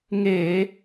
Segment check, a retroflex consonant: absent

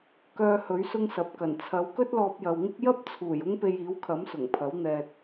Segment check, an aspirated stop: present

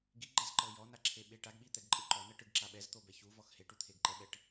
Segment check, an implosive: present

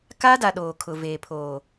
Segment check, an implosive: present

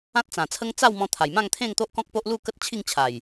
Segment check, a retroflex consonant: absent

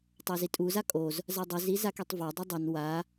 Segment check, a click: absent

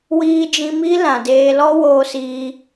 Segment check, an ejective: absent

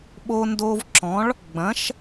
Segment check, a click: present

